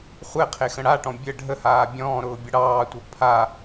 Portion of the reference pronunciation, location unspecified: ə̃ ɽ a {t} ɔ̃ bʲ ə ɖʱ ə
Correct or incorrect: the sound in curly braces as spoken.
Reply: incorrect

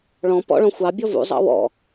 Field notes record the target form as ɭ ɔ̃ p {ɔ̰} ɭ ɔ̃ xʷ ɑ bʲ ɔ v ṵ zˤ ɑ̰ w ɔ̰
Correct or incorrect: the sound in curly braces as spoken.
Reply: correct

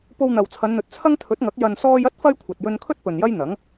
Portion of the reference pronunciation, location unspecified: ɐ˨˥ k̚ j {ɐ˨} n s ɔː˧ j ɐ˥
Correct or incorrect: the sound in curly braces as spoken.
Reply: correct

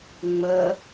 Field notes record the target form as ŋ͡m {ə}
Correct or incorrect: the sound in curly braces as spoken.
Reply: correct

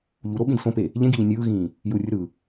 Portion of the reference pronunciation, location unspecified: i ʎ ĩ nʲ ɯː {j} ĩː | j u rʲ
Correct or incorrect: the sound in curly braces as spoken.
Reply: incorrect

